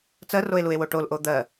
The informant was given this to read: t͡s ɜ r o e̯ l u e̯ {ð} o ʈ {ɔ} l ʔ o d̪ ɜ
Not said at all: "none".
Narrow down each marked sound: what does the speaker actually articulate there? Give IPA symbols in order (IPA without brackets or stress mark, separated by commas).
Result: w, o